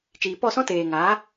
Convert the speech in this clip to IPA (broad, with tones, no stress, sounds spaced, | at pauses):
t͡ʃ iː˨ p ɔ˦˨ s ɔ̃˦ t eː˨ ŋ aː˨˦